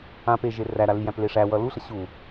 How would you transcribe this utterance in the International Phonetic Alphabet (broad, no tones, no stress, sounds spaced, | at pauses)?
ã p e ʒ e r æ ɾ a l i j æ̃ p l e ʂ æ w ʌ l u ɬ ʌ ɕ u